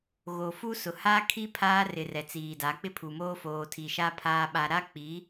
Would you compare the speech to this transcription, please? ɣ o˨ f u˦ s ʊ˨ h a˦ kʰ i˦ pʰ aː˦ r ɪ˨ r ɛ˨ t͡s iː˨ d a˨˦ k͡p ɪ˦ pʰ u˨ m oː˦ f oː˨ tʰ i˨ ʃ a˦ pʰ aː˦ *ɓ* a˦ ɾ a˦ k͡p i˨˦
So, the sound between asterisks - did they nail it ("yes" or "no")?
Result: yes